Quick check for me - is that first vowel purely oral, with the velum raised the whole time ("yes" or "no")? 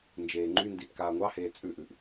yes